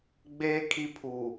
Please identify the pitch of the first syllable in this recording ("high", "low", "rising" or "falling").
high